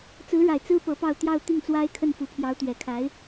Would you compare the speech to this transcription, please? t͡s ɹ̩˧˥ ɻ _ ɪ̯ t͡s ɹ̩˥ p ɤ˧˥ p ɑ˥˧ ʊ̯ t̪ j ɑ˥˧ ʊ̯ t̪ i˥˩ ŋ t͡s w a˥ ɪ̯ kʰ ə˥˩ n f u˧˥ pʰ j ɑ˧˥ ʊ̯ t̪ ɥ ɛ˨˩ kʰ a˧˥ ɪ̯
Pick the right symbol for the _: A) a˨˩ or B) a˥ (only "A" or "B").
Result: A